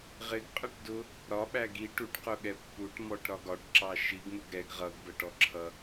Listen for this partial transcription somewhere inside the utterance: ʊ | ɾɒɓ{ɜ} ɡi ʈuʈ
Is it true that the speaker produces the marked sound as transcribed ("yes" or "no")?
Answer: no